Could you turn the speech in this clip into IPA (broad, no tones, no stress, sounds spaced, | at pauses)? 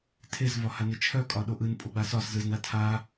tʰ e z v ɒ h a n e t͡ʃʰ œ kʼ ɒ ɗ o ʔ ɯ n pʼ o ɡ͡b a s ɒ s z ɯ z n a tʰ a